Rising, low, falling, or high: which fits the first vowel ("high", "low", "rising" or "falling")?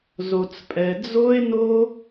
low